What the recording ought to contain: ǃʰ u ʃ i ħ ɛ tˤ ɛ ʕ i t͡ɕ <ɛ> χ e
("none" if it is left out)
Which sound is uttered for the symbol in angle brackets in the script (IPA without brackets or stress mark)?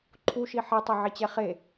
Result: ɛ